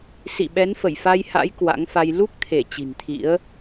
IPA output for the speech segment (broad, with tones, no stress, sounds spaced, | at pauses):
s ḭ˧˨ ɓ ɛ˨˦ n f ə˧˩ j f a˧ j h a̰˧˥ j k w a̰˧˥ ŋ f a˧ j l u˦˥ k̚ t̪ʰ e˧˩ t͡ɕ i̤˨˩ n t̪ʰ ḭ˧˥ ə̯